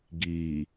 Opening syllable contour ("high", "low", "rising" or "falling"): low